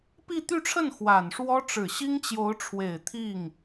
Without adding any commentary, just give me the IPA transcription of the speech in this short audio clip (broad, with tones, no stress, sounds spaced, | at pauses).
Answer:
p i˥˧ t̪ y˥˧ ʈ͡ʂʰ ə˥˩ n x w a˨˩ n ʂ w ɔ˥ ʈ͡ʂ ɻ̩˨˩ ɕ i˥ ŋ t͡ɕ j o˧˥ ʊ̯ ʈ͡ʂʰ w e˨˩ ɪ̯ t̪ʰ i˥˩ ŋ